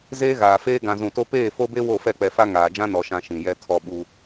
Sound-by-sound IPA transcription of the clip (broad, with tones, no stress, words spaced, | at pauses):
zeː˦ɣaː˨feː˦ ɡã˨zũ˨to˦ peː˦˨fo˦be˦ wo˦˨fɛ˦˨k͡pɛ˨fa˦ ŋaː˨d͡ʒã˦nɔ˨ʃã˨ ʃĩ˨jɛ˦ tʰɔ˦˨ɓu˦